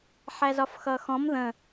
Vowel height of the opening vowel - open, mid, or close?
open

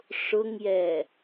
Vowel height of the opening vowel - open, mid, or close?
close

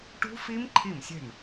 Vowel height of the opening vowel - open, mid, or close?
close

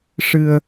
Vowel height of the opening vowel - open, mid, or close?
close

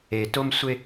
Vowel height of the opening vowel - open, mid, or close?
mid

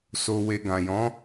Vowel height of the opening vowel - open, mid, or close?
mid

